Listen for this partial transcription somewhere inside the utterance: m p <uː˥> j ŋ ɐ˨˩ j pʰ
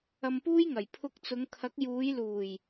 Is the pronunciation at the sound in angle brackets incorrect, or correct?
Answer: correct